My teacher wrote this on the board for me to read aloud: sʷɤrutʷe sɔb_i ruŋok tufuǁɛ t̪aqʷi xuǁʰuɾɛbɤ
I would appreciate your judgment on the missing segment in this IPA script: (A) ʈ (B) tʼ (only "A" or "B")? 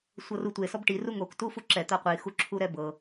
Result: A